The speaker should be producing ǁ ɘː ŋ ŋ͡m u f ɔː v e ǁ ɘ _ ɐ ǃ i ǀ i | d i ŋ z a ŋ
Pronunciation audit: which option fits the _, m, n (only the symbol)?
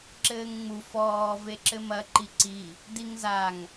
m